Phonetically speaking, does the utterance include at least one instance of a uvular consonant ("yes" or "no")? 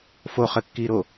yes